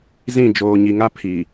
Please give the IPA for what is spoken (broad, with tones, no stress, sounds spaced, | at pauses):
z ĩ˦˨ d͡ʒ oː˨ ɲ i˨ ŋ a˦ pʰ i˨